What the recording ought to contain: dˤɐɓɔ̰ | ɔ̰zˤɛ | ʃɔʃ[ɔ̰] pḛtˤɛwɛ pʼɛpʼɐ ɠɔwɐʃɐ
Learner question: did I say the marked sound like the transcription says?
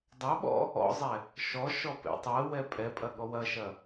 no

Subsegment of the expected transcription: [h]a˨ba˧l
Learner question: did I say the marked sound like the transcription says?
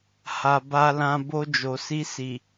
yes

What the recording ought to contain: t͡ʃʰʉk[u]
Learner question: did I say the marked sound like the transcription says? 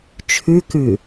no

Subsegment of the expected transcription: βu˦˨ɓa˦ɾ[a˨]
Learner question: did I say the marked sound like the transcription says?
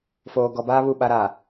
yes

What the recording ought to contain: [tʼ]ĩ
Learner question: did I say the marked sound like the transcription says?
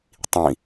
no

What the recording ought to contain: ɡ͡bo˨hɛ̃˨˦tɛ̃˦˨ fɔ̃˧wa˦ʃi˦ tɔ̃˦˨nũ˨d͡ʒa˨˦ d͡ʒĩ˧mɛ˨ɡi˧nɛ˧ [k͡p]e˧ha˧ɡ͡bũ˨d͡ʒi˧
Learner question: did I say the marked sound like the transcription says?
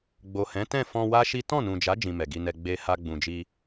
no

